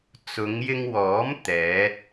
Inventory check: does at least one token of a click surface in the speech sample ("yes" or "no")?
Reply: no